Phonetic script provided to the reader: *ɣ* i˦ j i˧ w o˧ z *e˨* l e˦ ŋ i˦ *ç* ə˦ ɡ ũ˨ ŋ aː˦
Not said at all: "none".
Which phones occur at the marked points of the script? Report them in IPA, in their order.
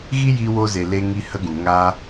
ɣ, e˨, h

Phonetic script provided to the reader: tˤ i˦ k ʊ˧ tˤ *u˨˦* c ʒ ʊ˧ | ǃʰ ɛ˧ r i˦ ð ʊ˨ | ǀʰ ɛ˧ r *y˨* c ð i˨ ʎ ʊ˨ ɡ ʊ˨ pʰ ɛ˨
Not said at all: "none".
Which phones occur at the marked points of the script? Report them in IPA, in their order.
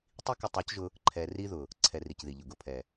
u˨˦, i˨

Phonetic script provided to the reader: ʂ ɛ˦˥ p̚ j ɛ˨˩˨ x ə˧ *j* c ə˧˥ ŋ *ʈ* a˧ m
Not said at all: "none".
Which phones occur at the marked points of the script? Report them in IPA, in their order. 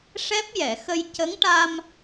j, ʈ

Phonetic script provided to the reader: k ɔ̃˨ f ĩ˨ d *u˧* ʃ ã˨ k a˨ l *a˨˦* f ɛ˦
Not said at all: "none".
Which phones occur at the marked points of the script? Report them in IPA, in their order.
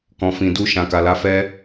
u˧, a˨˦

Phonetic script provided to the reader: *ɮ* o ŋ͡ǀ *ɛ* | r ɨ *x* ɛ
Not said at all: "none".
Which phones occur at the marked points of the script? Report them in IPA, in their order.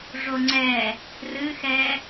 ʐ, ɛ, x

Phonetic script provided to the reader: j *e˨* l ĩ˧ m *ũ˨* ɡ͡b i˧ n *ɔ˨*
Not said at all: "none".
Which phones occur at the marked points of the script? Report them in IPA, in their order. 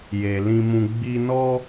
e˨, ũ˧, ɔ˦

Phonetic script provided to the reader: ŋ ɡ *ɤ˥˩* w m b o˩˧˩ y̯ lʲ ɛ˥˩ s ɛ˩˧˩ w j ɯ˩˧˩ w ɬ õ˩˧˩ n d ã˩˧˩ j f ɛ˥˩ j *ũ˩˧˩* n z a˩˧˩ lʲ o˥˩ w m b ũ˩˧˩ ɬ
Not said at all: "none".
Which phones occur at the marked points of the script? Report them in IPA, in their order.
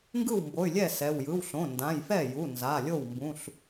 ɯ˥˩, u˩˧˩

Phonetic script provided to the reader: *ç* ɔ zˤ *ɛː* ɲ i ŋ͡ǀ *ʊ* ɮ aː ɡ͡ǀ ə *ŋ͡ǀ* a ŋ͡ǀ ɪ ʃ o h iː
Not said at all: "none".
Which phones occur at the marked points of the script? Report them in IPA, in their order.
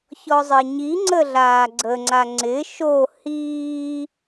ç, ɪː, ə, ŋ͡ǀ

